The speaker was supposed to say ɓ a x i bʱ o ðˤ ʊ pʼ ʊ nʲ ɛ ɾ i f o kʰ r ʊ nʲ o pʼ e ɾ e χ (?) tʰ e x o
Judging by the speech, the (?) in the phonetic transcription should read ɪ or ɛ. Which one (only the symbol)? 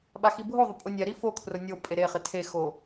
ɪ